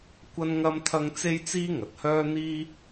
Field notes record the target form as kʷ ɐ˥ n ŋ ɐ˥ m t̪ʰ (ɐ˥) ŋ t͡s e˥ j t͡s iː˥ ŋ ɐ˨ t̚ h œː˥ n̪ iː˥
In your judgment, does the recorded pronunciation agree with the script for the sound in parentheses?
yes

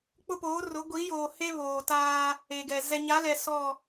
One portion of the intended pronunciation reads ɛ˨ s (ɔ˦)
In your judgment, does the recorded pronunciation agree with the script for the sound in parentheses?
no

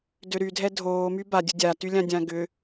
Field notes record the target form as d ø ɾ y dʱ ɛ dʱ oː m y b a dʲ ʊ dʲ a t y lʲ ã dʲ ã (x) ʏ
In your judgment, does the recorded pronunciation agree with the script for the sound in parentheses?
no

